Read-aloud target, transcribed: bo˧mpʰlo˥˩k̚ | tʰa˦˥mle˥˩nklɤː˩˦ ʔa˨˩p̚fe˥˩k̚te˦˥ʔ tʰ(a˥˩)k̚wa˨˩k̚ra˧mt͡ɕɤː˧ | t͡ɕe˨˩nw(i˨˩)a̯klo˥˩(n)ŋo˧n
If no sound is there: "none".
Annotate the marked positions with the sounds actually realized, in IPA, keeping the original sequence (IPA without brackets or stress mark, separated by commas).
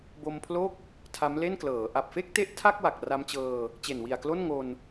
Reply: a˥˩, i˨˩, n